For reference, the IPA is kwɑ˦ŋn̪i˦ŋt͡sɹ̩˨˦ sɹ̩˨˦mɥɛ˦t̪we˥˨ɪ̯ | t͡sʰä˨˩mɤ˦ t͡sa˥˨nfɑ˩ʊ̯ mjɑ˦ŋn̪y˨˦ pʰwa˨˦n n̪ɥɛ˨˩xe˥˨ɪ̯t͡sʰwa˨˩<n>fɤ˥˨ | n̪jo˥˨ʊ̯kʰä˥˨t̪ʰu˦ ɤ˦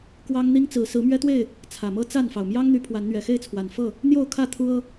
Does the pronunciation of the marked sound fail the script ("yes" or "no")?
no